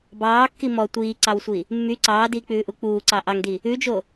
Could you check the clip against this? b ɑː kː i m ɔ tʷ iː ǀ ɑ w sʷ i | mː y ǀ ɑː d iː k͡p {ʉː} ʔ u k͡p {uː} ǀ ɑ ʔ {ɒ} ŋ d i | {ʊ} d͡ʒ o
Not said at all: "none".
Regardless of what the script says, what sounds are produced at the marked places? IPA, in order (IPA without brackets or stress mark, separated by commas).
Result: ʉː, uː, ɑ, ʉ